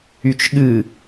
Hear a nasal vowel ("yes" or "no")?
no